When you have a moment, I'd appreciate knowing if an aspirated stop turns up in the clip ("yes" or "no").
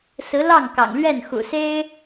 no